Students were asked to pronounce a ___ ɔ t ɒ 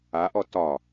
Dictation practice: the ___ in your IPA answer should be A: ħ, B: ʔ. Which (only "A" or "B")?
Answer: B